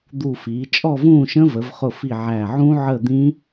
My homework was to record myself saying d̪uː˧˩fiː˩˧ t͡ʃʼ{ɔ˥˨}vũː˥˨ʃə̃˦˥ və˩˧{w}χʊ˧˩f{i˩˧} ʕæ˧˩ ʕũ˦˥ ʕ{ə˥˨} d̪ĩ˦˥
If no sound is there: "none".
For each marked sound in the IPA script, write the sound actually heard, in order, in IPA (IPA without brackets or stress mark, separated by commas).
ɔ˥˨, v, i˧˩, ə˥˨